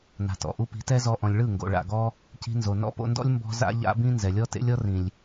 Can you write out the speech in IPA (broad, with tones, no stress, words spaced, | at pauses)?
na̤˨tɔ̰˨ʔu˧ pi̤˨˦tɛ˦zɔ˧ʔɔ̃˨lʲ ɭɯ˦˨ŋɡo̰˨ ɭa̰˨ɡɔ˦ | ci̤˧nzo˨nɔ̰˦ po̰˧ndɔ̰˦lʲ mbɔ̤˦za̰˦ ʎa̰˦bĩ˦ nzɛ˨lʲɔ˦ tḛ˦lʲɔ˦ rĩ˨lʲ